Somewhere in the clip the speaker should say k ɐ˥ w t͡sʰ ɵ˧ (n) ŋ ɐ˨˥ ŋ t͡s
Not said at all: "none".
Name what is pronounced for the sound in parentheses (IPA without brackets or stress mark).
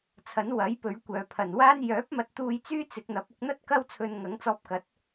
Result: n